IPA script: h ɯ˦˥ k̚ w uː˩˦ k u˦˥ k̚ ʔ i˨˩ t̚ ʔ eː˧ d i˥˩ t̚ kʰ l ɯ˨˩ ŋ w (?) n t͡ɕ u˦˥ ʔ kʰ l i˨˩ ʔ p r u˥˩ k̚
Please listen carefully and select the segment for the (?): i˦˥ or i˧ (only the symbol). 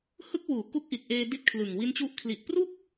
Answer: i˦˥